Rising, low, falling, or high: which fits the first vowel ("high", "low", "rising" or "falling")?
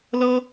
high